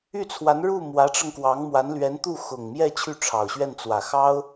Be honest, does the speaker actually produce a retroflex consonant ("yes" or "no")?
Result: yes